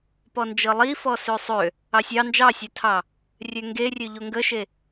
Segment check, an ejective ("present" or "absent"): absent